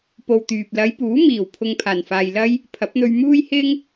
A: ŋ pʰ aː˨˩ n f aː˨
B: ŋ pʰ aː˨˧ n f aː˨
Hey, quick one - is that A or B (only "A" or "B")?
A